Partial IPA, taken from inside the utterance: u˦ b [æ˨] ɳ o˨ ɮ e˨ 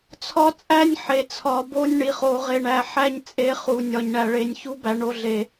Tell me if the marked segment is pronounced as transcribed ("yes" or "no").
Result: yes